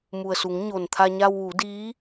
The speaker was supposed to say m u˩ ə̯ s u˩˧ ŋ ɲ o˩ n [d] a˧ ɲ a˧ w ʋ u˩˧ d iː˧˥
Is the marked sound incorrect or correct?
incorrect: t̪ʰ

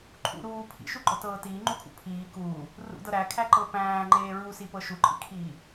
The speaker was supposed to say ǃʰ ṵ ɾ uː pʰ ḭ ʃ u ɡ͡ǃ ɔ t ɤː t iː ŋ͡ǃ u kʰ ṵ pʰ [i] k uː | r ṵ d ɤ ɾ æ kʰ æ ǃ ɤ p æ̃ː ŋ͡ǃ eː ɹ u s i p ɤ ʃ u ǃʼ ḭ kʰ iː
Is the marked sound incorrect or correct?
incorrect: iː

